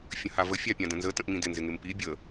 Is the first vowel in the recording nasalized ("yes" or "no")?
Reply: yes